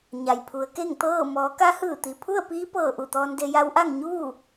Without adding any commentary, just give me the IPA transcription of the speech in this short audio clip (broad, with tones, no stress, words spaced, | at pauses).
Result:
ɲa˩jpʰu˩˧ə̯ke˥˨ŋ t̪ɤː˥˨ mɔː˩˧ka˧˥hɯː˧˩ t̪i˩pʰu˥˨ə̯piː˧˥pɤː˧˩ ʔu˧˩t̪ɔː˧nde˧ ja˧˥wʔa˥˨ŋ ɲuː˥˨